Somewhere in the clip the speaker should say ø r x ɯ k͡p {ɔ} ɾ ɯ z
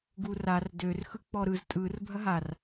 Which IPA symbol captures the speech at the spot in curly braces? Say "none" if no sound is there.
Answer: ɔ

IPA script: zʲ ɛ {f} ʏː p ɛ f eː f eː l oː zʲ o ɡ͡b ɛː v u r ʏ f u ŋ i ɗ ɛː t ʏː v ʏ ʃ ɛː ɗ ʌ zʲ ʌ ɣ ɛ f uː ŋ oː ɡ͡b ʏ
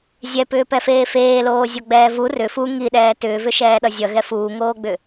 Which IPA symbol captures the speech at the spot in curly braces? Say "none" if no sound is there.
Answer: p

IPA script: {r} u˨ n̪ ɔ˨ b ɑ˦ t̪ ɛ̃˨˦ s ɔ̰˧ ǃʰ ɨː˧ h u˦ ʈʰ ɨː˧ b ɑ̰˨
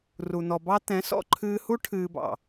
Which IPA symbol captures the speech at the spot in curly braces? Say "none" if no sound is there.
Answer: r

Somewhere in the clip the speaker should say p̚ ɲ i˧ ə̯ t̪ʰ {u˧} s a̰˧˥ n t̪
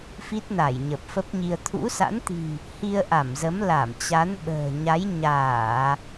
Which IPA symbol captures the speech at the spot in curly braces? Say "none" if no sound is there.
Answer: ṵ˧˥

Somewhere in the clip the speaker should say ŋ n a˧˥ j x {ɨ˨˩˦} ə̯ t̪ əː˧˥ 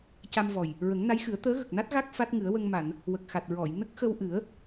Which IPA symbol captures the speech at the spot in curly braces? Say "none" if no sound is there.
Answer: ɨ˨˩˦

